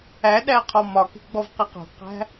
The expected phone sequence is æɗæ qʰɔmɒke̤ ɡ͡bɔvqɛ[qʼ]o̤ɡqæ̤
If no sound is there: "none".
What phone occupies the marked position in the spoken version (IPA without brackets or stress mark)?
q